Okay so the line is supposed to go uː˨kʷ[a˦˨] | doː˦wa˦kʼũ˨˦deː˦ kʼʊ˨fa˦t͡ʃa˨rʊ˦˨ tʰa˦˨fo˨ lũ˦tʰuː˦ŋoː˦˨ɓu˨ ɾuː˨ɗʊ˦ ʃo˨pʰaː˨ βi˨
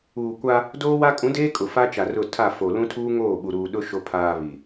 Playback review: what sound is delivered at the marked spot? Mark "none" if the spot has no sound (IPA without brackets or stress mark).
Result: a˦